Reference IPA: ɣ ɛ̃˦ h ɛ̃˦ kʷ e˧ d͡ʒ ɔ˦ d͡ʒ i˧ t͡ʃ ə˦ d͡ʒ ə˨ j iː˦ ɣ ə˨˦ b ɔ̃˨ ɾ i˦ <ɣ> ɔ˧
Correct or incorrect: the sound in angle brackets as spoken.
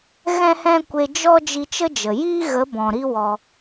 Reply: incorrect: w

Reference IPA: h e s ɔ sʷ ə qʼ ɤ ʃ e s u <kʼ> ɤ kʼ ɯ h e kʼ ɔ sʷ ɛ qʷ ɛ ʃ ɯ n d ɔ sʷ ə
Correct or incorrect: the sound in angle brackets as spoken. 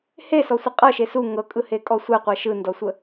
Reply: incorrect: ŋ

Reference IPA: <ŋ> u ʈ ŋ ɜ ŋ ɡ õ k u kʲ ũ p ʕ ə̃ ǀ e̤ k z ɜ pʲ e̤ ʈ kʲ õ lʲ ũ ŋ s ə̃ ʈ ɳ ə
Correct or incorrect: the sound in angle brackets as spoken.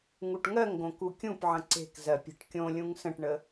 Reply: correct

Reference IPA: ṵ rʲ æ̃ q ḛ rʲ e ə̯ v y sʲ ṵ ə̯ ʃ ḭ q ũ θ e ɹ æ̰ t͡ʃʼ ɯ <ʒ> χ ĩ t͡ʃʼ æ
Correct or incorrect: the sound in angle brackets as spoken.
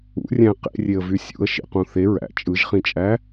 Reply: correct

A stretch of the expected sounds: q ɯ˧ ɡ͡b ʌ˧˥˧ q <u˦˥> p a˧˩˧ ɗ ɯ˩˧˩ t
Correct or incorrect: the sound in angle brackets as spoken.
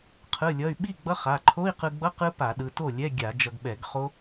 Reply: incorrect: ɯ˦˥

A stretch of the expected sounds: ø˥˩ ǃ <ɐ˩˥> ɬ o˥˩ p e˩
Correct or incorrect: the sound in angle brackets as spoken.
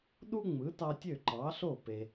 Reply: incorrect: ɑ˩˥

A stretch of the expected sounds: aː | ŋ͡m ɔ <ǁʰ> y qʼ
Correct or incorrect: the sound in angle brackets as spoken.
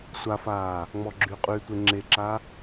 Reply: incorrect: ɡ͡ǁ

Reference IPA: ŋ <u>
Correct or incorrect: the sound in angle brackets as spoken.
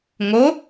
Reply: incorrect: o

